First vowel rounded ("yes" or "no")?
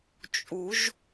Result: yes